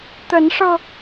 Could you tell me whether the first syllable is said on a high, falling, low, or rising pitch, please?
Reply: rising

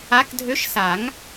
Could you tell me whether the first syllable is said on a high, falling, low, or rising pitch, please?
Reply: rising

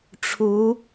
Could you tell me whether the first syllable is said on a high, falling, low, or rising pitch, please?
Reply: rising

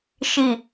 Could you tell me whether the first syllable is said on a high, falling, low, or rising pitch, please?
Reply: low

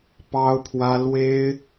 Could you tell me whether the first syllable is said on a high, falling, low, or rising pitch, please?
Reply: high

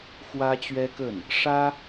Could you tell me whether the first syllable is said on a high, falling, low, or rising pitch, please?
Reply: high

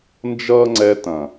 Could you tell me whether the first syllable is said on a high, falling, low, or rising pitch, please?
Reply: high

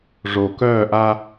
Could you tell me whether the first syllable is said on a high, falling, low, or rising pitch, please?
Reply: low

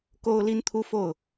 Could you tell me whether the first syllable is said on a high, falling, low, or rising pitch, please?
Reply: high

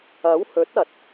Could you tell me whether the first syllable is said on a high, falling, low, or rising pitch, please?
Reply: rising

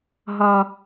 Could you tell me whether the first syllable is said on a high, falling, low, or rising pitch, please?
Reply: low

